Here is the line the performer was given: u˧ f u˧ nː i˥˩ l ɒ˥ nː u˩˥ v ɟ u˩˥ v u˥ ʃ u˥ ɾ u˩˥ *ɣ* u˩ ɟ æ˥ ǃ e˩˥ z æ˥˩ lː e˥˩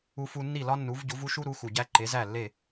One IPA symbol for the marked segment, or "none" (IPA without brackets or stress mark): x